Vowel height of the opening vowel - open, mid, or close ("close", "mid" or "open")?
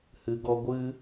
close